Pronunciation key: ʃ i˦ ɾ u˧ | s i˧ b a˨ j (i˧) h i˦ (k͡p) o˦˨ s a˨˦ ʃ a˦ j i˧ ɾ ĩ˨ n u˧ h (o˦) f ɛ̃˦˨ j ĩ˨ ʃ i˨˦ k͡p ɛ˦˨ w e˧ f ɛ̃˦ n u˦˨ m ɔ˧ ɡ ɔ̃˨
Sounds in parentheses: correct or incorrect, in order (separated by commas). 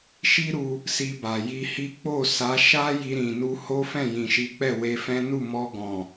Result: correct, correct, correct